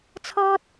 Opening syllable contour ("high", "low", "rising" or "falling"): high